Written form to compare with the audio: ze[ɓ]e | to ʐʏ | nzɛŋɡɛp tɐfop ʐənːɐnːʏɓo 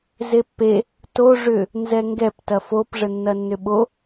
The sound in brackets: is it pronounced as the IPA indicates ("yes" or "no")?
no